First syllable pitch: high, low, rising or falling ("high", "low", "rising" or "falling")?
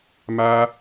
high